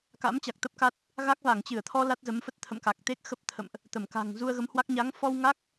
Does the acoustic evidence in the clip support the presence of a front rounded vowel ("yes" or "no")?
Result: no